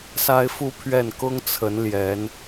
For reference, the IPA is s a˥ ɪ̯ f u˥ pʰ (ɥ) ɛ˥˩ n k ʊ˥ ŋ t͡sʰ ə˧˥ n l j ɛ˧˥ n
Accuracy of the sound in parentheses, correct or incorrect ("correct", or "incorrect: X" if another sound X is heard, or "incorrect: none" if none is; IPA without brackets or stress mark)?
correct